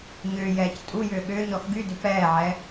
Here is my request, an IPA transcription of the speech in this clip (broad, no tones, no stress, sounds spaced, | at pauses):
ɲ ʏː j ɛː c tʼ u j ʏː ɠ ʏː ɲ ɔ x ɡ y d ʏ p ɛː ʕ ɛ